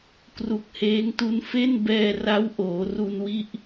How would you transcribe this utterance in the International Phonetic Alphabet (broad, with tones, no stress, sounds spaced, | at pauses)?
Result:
k r u˨˩ k̚ h eː˦˥ ŋ t u˦˥ n f e˥˩ n b ɛː˧ r a˦˥ w ʔ oː˩˦ r u˧ n w i˥˩ ʔ